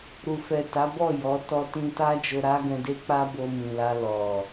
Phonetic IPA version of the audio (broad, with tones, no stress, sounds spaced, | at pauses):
ɾ u˨ f ɛ˨ t a˨˦ b ɔ˦˨ j ɔ˨˦ t ɔ˧ t ĩ˧ t a˦ d͡ʒ o˧ ɾ a˦ ɡ ɛ̃˧ d e˦ k͡p a˦ b o˧ m ĩ˨ l a˧ l ɔ˨